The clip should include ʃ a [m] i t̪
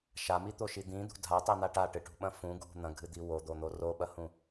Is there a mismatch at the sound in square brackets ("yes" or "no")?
no